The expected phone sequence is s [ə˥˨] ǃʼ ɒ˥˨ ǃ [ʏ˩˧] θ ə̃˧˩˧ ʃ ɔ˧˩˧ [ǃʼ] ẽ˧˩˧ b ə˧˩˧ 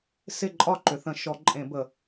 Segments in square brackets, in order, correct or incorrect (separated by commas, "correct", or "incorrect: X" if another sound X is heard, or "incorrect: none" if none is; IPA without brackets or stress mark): incorrect: ɪ˥˨, correct, correct